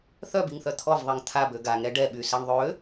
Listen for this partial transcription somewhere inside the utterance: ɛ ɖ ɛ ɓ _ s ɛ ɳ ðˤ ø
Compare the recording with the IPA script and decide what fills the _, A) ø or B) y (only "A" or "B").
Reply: B